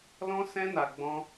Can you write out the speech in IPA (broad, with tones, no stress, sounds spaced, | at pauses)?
l ɔ̃˦ s ɛ̃˦ n a˧ ɡ͡b ɔ̃˦